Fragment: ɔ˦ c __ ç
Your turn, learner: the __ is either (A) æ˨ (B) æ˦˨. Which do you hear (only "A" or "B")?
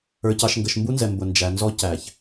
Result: A